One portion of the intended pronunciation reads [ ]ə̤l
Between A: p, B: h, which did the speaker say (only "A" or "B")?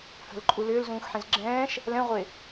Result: B